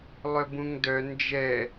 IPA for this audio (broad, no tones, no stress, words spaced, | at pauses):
lˠœbũŋdœ nd͡ʒɛ